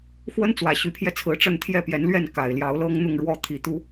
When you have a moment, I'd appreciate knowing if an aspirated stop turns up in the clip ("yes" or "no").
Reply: yes